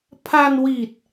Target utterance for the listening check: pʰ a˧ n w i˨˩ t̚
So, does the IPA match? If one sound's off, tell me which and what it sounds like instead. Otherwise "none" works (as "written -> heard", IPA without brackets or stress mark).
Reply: none